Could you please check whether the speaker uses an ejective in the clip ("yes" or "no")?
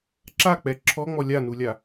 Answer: no